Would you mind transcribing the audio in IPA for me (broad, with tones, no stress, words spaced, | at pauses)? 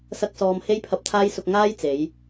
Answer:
sɐ˥k̚sɔː˧m he˥jpʰɐ˧p̚t̪ʰaː˥jsʊ˧k̚ ŋaː˥jt͡se˨˧j